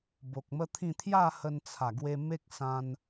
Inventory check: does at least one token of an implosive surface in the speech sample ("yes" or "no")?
no